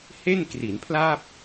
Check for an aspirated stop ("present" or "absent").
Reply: present